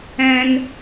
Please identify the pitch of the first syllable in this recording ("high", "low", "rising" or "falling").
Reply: high